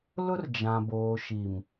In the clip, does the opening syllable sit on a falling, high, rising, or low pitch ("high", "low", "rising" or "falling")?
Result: high